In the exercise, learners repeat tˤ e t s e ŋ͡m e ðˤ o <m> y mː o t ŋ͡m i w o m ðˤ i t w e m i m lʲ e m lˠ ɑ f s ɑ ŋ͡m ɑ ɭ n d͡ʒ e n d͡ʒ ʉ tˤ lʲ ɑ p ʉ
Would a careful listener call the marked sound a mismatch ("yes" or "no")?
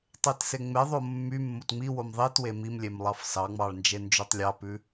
yes